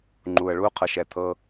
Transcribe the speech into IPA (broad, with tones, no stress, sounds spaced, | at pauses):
ŋ͡ǃ u˨ ə̯ ɭ u˦ qʰ ɤ˨ ʃ ɛ˨ t̪ʰ ɤ˧